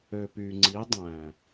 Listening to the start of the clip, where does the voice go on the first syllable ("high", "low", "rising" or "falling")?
low